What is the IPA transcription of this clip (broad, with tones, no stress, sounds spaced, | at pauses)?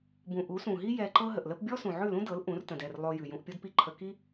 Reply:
b ũ˨ ʔ u˨˦ s ũ˨ ɦ i˦ j ɛ˧ ǃ ɤ˦ ɦ ə˨ ʔ l ə˧ p bʲ ɔ˦ s ũ˨ ʕ ʉ˦˨ l ũ˦ d ɤ˨˦ l ʔ ũ˨˦ r t ə̃˨ d ɛ˦˨ r lˠ o˧ j ʉ˨ j ũ˧ ʔ pʲ o˦ d p i˦ ǃʰ ə˧ k i˦